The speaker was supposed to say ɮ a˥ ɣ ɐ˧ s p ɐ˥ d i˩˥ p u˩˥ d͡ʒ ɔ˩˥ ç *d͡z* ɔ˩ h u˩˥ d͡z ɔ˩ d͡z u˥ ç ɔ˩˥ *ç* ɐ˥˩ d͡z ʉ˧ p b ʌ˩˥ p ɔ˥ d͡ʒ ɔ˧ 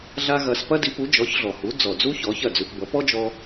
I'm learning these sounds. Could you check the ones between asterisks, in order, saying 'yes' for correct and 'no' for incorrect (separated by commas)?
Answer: no, yes